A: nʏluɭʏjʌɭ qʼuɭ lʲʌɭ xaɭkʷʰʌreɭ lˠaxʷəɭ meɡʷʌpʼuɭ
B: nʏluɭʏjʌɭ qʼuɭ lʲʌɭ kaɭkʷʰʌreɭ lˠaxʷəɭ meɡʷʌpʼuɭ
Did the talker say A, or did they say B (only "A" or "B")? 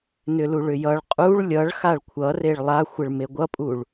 A